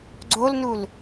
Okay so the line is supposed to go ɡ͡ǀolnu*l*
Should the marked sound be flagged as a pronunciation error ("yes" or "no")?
no